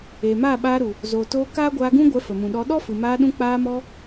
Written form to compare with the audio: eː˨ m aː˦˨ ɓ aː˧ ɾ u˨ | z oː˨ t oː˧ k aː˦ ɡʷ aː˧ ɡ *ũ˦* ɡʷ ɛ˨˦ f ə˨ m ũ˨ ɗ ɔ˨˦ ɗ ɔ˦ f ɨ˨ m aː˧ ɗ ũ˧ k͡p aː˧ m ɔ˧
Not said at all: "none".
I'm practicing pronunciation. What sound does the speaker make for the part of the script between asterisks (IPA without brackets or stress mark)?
ũ˦